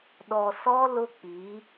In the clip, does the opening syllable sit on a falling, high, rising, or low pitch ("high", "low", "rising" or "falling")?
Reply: low